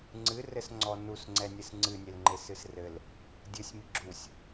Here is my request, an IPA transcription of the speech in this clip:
ŋ͡ǀ ɨ r ɘ s ŋ͡ǀ ɔ n u s ŋ͡ǀ ɛ nʲ ɨ s ŋ͡ǀ ɨ nʲ e l ŋ͡ǃ e s ɨ s r ɘ l | dʲ ɨ sʲ m i ɡ͡ǁ u sʲ

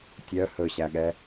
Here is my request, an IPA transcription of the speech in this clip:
tʲ œ h ɵ ɕ æ ɠ ɛ

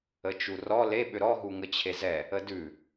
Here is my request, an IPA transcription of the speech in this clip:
ə t͡ʃ u r ɔ l e ɓ ʏ ɾ ɔ ɦ u ŋ ə t͡ɕʰ e z ɛ | ə d ʉ

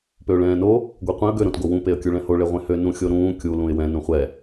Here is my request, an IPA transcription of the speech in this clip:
p ø ʊ̯ ɭ ɛ̃ː n o | ɡʷ ɛ qʷ ẽ ə̯ ɡ ø ɾ õ t ɡ o w ũ p e ə̯ kʲ u ɭ ɛ̃ h o ɭ e ʁʷ ẽ h ø n ũ xʲ o ɾ ũː kʲ u l ũ ɪ̯ w ɛ̃ n ũ χʷ ɛ

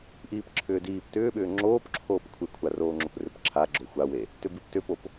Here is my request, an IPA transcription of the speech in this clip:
ʔ iː p ǁʰ ʏː d iː p t ʏː ɓ ʏː ŋ͡ǁ oː p ǁʰ oː p kʷʰ e kʷʰ a r oː ŋ͡ǁ o p r ʏ p ǁʰ a ɡ͡ǁ o xʷ a w e | t ʏ b i p t ʏ p o p

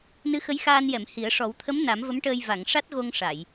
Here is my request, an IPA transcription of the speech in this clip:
n ɨ˧˥ x ə˧˥ j x aː˧ n j ɛ˨˩˨ m h i˨˩˦ ə̯ ʂ ɔ˨˩˦ w t̪ʰ ə˧˥ m n a˨˩˦ m v ə˧˥ m ʈ əː˧ j v a˨˩˨ ŋ ʂ a˦˥ t̚ ɣ o˧ ŋ ʂ a˨˩˨ j

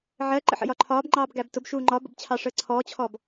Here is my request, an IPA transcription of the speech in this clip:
ʕ ɜ ǃ ə̰ ħ ə̰ j ɒ ǃʰ ɒː b ŋ͡ǃ ɑː b ɡ æ b t ʊ b ʃ uː ŋ͡ǃ ɒ b ə̰ b t͡ɕʰ ɑ ʂ əː ǀʰ ɔː t͡ɕʰ ɔ b

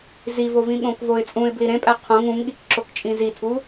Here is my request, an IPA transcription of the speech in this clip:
z i v o v ĩ ɠ õ k v o ɪ̯ t͡sʼ ũ ɪ̯ b l i ɾ ẽ pʼ æ qʰ õ ŋ ũ ŋ ɠ i k ǁ o k t͡ʃʼ ĩ z i tʰ u

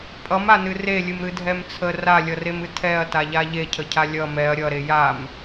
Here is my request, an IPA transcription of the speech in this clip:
pʼ ʌ m a n ɨ r e lʲ ɨ m ɾ ɨ dʱ ɛ m t͡sʰ ə r a lʲ ʌ r e m ɨ tʰ ɛ ɐ̯ t a ʎ a ʎ e cʰ ə cʰ a lʲ ʌ m ɛ ɐ̯ ɾʲ ʌ ɾ e j a m

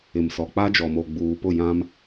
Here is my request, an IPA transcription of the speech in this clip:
ɪ˨ m s ɔ˨ k͡p a˦ d͡ʒ ɔ˨ m o˨ ɡ͡b uː˨ p ʊ˦˨ j ã˦ m

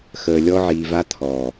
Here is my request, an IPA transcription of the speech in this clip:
x əː˨ lʲ ɔ˧ ʕ iː˨ v a˧ t̪ʰ ɔː˨

